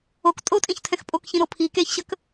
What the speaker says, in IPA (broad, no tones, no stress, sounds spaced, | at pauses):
o k tʼ o tʼ ĩ ç tʰ ɛ̃ x pʼ o k ç ĩ ɾ o pʰ i k e ç ɕ ə k